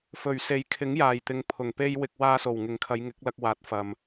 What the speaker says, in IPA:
fɵ˨˩ɥse˨˥jkʰɪ˨˥ŋ jaː˨˩jt̪ɪ˨ŋ pʰʊ˨˩ŋpe˥j wɪ˧k̚ waː˧so˨˩wŋɪ˨˩ŋ kʰɐ˨˧jŋɪ˨˥k̚lɐ˧k̚ waː˨˥t̚ fɐ˨m

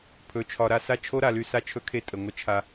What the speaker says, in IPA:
pʰɵ˨t͡ʃʰɒ˨ɾa˨sa˦ t͡ʃʰo˦ɾa˨ly˦ sa˦t͡ʃʰɵ˦kʰe˦ tʼə˨ ŋʷə˦t͡ʃʰa˦

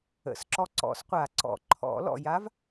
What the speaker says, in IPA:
ə̰˨˩sǁɔ˧ ǀɔ̰˨˩˦sqʷa˨˩˦ǀɔ̰˨˩˦ ǃʰɔ̰˨˩˦lɔ̰˨˩ ja˧˥v

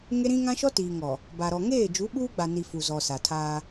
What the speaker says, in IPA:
ŋe˦ɾĩ˦ ŋã˦ʃɔ˦tiː˨ŋɔ˨ | ba˨ɾɔ˨ŋeː˦˨ d͡ʒu˨˦ɓuː˦ɡ͡ba˨ni˨ fu˨zɔ˨ sa˨tʰaː˦

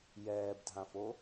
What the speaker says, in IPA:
jɛːbdʱãfo

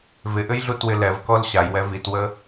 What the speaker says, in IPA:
vɪʔɘjɮutwɪ lɛvkɔl ɕajwɛ vitwə

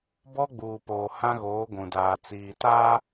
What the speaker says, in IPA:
bɔ˦ɡ͡buː˨poː˨ hã˦ɣoː˨˦ɡʷũ˨ daː˨t͡siː˨taː˦

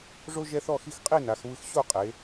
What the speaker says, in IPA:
ʐo˦ ʒɛ˦θɔ˥˨xi˦x qʼi˥˨na˩˧x βɯ˦x ɕo˥˨qʼe˩˧

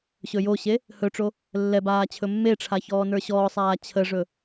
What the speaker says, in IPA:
ɕɵjoɕe | hɵʈ͡ʂo | lːɛbaː t͡ɕʰɵmːeʈ͡ʂʰa çɔːnə˞ɕɔːsˤaː t͡ɕʰəʐɵ

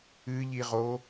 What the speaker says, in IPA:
ɨʎiʁo

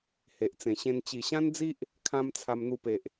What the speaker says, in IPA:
he˨ʔt͡sẽ˨˩ɕẽ˧n t͡ɕi˨˩ɕã˦nd͡zi˦ʔ | kʰã˧m t͡sʰa˧mn̪u˧pe˨ʔ

